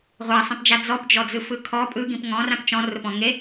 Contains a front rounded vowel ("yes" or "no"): no